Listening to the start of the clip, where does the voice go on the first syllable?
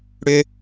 low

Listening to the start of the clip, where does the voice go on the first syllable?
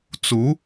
rising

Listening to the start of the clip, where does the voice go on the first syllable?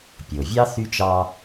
low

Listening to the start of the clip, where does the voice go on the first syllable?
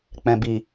low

